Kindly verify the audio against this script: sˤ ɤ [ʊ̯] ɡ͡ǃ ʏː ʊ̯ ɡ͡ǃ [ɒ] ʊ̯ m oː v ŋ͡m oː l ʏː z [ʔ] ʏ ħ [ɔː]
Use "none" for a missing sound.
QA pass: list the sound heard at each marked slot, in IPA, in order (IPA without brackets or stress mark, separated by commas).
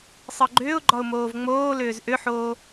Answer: none, ɒ, ʔ, oː